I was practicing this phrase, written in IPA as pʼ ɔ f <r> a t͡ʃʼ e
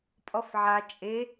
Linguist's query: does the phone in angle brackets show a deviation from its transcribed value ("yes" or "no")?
yes